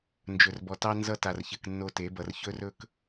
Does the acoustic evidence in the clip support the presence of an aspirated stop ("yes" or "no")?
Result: no